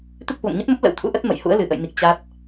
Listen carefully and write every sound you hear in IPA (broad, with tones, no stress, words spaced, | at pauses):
t̪ɨ˦˥k̚hwo̰˧˨ŋɲə˦˥t̚mə˦˥p̚ lə̰˧˥wt̪ʰṵ˧˥ʔə˦˥t̚ mə̰˧˨j hṵ˧˥ə̯lɨ˧˩ʔə̰˧˨jni˨˩k̚ t͡ɕa˦˥t̚